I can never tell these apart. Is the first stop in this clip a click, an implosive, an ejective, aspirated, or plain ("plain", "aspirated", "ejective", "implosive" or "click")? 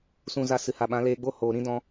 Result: implosive